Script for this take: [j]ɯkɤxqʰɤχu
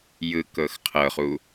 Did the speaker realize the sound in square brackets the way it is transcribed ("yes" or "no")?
yes